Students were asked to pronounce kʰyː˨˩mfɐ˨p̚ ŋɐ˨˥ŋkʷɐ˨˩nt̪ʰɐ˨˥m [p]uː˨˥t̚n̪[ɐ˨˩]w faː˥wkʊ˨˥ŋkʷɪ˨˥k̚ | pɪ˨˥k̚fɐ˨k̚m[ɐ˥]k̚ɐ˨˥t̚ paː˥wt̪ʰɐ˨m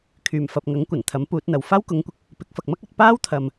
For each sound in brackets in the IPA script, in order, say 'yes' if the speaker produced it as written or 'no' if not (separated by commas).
yes, no, yes